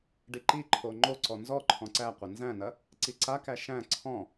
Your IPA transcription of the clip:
ɖ i ǃ i ǃʰ o ŋ͡ǃ o ǀ ɔ n z ɔ ǃʰ ɔ̃ ǀ æ qʷ ɐ n z æ̃ n ɐ | ǀ i ǀ a k æ ʃ æ̃ ǀʰ ɔ̃

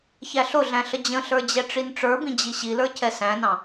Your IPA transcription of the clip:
ç æ ɬ ʊ ɮ æ̃ ɬ ə d͡ʑ ə̃ ɬ ə˞ d͡ʑ ɛ ʈ͡ʂ i n ʈ͡ʂ ə˞ b ĩ d͡ʑ i ɕ i l ə˞ cʰ ɛ s æ̃ n ɑ̃

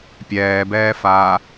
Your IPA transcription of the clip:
pʲ ɛː b ɛː f aː

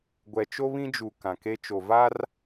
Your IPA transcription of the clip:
ɡʷ ɛ˨ t͡ʃ o˦ β ĩ˦ d͡ʒ u˨ k ã˨ k e˦ t͡ʃ o˨ v a˦ r

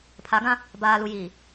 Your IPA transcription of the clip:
pʰ a˨˦ ɡ ã˦ | b aː˨ l u˨ j iː˨

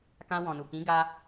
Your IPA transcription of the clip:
k ã˧ w ɔ̃˨ n u˨ k ĩ˨˦ ɡ a˧

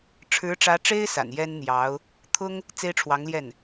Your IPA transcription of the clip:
ʈ͡ʂʰ ɻ̩˧˥ ʈ͡ʂ ä˧˥ ʈ͡ʂ e˥ ɪ̯ s a̰˨˩ n j ɛ˥ n n̪ j ɑ˧˥ ʊ̯ | t̪ʰ ʊ˥ ŋ | t͡s e˥ ɪ̯ ʈ͡ʂʰ w ɑ˧˥ ŋ l j ɛ˥˩ n

